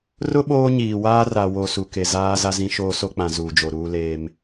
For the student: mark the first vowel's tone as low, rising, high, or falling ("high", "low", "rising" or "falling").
high